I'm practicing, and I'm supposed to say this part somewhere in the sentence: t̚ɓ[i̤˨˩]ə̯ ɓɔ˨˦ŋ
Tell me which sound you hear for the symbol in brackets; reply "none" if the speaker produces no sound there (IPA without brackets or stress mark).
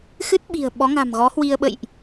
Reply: i̤˨˩